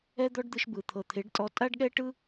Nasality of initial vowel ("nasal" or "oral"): oral